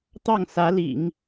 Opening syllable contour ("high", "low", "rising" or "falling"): falling